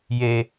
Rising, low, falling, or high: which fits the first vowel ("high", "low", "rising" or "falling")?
high